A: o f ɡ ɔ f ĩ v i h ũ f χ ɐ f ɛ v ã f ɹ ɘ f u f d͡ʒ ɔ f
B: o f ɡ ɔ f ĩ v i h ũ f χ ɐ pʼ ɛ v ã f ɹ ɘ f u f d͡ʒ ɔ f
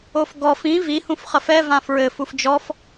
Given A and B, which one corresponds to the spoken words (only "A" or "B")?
A